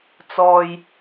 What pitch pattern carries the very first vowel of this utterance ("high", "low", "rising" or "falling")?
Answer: low